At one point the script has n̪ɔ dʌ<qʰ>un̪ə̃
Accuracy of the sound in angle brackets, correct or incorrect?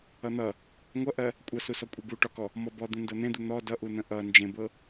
incorrect